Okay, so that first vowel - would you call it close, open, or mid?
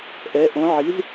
mid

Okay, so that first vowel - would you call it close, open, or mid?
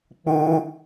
close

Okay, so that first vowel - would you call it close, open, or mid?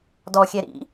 mid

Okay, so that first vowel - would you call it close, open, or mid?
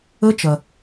mid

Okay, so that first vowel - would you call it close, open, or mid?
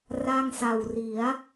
open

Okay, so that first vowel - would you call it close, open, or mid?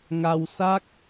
open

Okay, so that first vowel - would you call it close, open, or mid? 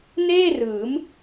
mid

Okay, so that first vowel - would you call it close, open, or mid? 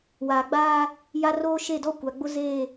open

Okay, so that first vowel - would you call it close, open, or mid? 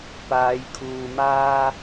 open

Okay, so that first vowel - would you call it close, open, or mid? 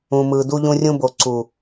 close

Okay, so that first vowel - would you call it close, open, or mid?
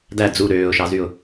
open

